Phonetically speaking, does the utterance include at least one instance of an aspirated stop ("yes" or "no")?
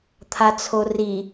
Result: yes